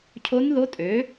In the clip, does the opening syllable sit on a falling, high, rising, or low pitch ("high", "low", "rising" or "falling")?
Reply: rising